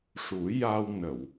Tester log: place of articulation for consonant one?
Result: retroflex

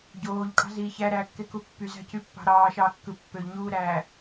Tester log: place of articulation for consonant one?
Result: palatal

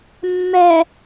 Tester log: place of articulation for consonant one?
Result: labial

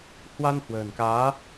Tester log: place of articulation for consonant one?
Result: glottal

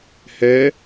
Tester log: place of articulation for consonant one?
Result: glottal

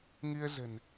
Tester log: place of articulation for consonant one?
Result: velar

